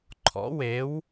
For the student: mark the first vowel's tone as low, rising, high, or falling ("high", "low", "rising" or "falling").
rising